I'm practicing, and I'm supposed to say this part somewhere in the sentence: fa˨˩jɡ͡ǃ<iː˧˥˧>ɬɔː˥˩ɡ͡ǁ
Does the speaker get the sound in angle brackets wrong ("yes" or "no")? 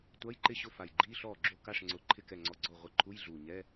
no